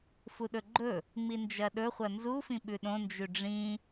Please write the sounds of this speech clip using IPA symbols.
f u ɗ ɵ ɡ͡ǃ ɵ | ŋ͡m i n d͡ʒ ɐ ɗ ɵ χʷ ɐ n z u f ĩ ɓ ʉ ɗ õ n d͡ʒ ʉ ɖ͡ʐ ĩ

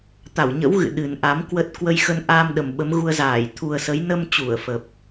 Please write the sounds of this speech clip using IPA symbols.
t̪ a˧˩ w ɲ ə̰˧˥ w ɣ ɨ̰˧˨ ɗ ɨ˨˩ n ʔ a˨˦ m k w ə˦˥ t̚ k w ə˧ j x ə˧ n ʔ a˧ m ɗ ə˨˩ m ɓ ə˨˦ m ɣ u˧ ə̯ z aː˧˩ j t̪ʰ u˨˩ ə̯ s ə˨˦ j n ə˧ m t͡ɕ u˧˩ ə̯ f ə˨˩ p̚

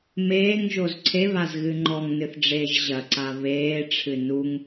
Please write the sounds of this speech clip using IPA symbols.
m eː ŋ ʒ o z ǀʰ e β a z ɣ ɨ ŋ͡ǃ ɔ ŋ n ɨ θ ɖ͡ʐ eː ʒ ʑ ɐ ǀ a β eː ʈ͡ʂʰ ɨ n u ŋ

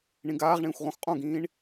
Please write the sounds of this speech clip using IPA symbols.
ɳ ĩ ɡ aː ʁ ɳ ĩː xʷ ʁ õ x qʼ õ ɡ ĩː ɳ

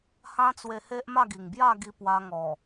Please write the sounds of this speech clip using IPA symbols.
h ã˦ t͡s w e˧ h e˦ ʔ m a˥˧ ɡ i˨˩ ŋ b j a˥˧ ɡ i˧ p w a˧ ŋ ɔ˨˩

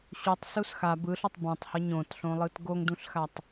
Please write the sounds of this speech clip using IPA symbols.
ɕ u tˤ s u s x a b ɯ ɬ o tˤ b ã tˤ h ʌ ɲ õ t ɬ õ lˠ ɯ t ɡ o ŋ d ũ ɬ x a tˤ

